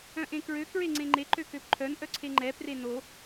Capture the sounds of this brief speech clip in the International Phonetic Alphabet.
œ̃ ʔ ẽ k ɹ ø k ɹ e ŋ͡ǀ ẽ ŋ͡ǃ e ǃ ø k ø p ǃʰ œ n ʔ œ ǀʰ e ŋ͡ǃ ɛ p r e n o

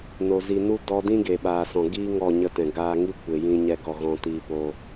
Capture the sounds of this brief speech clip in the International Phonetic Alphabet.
n o˨ z i˨ n u˦ d ɔ˧ d ĩ˦ ɡ e˨ ɓ aː˨ s ɔ̃˨ ɡ iː˦ ŋ ɔ˦˨ ɲ ə˦ t ɛ̃˨ ɡ aː˧ ŋ i˦ kʷ e˨ j ĩ˦ ɲ ɛ˦ ɡ ɔ˦˨ ɣ ɔ̃˦ t iː˦ p o˦

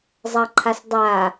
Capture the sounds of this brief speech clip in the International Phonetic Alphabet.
zˤ ɐ ǃʰ a s dˤ a

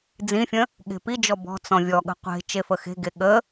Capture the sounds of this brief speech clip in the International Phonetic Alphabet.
d͡z ĩ fʲ ə̃ | ɠ e̤ p i d͡ʒ ɔ b ɔ̤ t͡s ɔ̃ vʲ ɔ ɠ ə̤ qʷ e̤ t͡ʃ e f ə x e̤ ɡ e ɠ ə

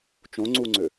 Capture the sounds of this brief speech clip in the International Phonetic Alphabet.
t͡ʃ õ ŋ͡ǀ u ŋ͡ǀ ø

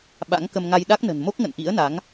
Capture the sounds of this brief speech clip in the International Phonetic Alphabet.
ɓ a̰˧˥ ŋ k ə˧ m ŋ a˧ j ɗ a˦˥ k̚ n ə̤˨˩ n m o˦˥ k̚ ŋ ə̰˧˨ n ʔ ḭ˧˥ ə̯ n a˨˦ ŋ

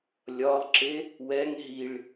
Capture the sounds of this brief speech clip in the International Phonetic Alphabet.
lʲ ɒ lˠ ǁ e | w ɛ ŋ ɦ i ɭ

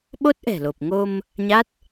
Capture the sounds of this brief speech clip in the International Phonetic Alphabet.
ɓ o˦˥ t̚ ʔ ɛ̤˨˩ l o˨˩ p̚ ŋ o˧ m | ɲ a˦˥ t̚

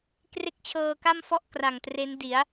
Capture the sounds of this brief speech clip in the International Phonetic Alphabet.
k r e˥˩ k̚ t͡ɕʰ ɤː˧ k a˥˩ m f ɔ˥˩ ʔ k r a˨˩ ŋ t r e˦˥ n d i˩˦ a̯

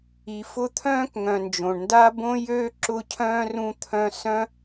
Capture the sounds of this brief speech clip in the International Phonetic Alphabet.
i˨ f ʊ˦ t̪ʰ œ̃ː˥ k ŋ œ̃˨ n d͡ʒ õ˩ ɳ n d a˥ b õ˥ j ø˥ ǁ ʊ˦ cʰ œ̃ː˥ r ũ˦ t̪ʰ œ̃˦ s œ̃˥

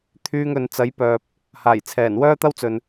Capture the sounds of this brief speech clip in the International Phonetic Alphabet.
t̪ʰ yː˧ ŋ ɵ˨ n t͡s ɐ˨˥ j p œː˨ p̚ | h aː˨˩ j t͡sʰ ɛː˨˩ n w œː˥ t̪ ɐ˥ w t͡s ɵ˨ n

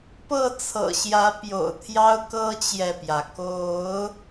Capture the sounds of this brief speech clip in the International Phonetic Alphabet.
p ɤ˥˨ t͡sʰ ɤ̰˨˩ ɕ j ä˨˦ p j o̰˨˩ ʊ̯ t̪ʰ j ɑ˦ ʊ̯ k ɤ˦ t͡ɕ j ɛ˨ p j ä˩ k o˨˦ ʊ̯

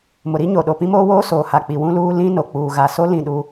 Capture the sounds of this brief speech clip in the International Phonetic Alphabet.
m ʊ˨ ɾ i˦ ɲ o˨ ɗ o˨ p ĩ˦ m oː˦ w oː˦ s oː˨ h a˨ k͡p i˨ w ũ˦ l uː˦ l ĩ˦ n o˨ k͡p uː˨ ɣ a˨ s o˦ l ĩ˦˨ ɗ u˦

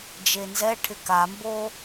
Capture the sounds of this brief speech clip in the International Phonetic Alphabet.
d͡ʒ e n z ɛ ʈʰ ɪ k a m b o

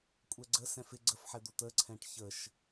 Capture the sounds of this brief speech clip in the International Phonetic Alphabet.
kʷʼ ɛ ɡ͡ǀ ə s ɛ̃ f ɪ ɡ͡ǀ ə f ħ ɛ d̪ o t̪ ə ǀʰ ɛ̃ ʈ ç ə ʃ

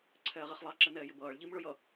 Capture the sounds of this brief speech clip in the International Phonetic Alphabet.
ǀʰ ɛː ʁ i χ lˠ ɑ ǁ ɛ n ɛː j ɪ b ʌː ɭ ʎ i m ɭ ʊ j ʌ

